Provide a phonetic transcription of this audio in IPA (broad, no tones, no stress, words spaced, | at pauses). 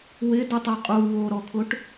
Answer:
wɪdutˤʊ qʼu woɾɔkʰʊʈ